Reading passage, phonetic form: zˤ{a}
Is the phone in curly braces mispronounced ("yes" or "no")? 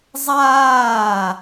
yes